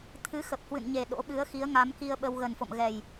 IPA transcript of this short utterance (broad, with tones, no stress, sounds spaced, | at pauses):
t̪ʰ ɨ˨˦ x ə˨˩ p̚ h w ɨ̰˧˨ n ɲ e˨˩ ɗ o̰˧˥ ɓ ɨ˨˦ ə̯ x i˨˦ ə̯ ŋ a˨˦ m k i˧ ə̯ ɓ ə˧ w ɣ ə˨˩ n f o̰˧˨ m ɣ ɛ˨˩ j